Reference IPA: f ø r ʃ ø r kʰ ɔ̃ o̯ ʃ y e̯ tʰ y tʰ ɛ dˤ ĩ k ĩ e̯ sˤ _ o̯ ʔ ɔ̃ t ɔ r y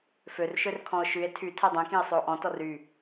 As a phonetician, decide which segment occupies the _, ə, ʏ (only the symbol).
ʏ